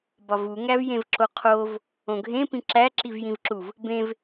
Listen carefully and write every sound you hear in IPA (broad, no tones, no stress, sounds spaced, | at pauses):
b ɒ v u ŋ æ v j ẽ v ǁ o qʰ o v | õ ɡʱ ẽ p ĩ ǁ æ ǁ i v j ĩ v ǁ u v | b ẽ v